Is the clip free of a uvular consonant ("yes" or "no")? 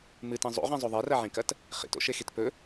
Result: no